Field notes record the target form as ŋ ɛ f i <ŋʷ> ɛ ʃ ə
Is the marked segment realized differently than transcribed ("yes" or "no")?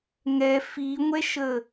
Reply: no